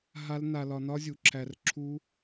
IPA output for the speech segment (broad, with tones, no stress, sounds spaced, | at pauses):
ɦ a˦ l n a˧ l ɒ˧ n ɒ˦ zʲ u˨˦ ǁʰ æ˧ r ǁʰ u˦